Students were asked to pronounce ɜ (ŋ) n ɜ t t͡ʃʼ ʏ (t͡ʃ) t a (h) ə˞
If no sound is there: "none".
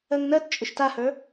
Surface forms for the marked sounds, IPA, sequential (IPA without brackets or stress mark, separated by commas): ŋ, ʃ, h